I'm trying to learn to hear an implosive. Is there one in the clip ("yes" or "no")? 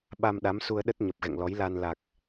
yes